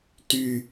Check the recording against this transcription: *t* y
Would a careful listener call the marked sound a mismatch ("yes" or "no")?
no